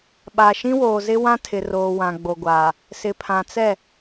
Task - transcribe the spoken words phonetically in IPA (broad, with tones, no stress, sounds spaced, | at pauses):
ɓ a˨ ʃ ĩ˦ w oː˨ z ɪ˦ w ã˦ tʰ ɪ˨ r oː˨ w ã˨ ɡ͡b o˨ ɡʷ aː˨ | s ɪ˨ pʰ ã˨ t͡s ɛ˦˨